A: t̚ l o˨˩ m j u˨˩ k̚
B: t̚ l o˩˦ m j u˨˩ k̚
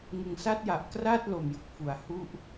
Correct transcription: A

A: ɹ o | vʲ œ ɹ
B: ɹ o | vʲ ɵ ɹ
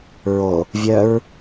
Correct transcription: A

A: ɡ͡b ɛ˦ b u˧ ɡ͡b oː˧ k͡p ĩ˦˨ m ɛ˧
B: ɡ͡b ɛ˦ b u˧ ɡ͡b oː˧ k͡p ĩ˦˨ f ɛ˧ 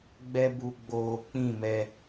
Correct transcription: A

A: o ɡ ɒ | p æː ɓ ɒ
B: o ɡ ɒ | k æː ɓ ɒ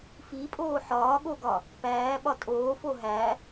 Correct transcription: A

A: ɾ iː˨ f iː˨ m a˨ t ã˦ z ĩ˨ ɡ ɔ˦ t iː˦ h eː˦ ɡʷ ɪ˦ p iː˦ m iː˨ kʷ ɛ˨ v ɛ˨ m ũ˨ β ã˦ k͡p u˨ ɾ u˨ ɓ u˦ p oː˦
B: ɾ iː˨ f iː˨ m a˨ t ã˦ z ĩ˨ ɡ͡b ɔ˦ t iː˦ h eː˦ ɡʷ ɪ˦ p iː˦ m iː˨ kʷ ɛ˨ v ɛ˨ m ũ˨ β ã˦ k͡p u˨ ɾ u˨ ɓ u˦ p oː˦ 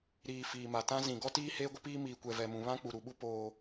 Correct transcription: A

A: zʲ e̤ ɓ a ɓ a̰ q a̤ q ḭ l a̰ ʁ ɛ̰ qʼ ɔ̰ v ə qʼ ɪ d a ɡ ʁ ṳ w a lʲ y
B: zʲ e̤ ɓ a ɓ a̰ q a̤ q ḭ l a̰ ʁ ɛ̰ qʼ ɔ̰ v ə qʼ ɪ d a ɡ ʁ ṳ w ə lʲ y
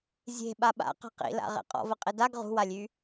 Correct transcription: A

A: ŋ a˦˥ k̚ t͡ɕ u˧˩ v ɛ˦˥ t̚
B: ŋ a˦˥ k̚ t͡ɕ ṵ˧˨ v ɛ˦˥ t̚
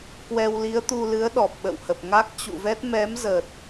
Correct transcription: B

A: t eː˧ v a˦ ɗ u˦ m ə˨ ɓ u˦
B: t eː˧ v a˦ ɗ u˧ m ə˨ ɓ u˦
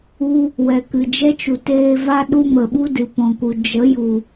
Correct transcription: A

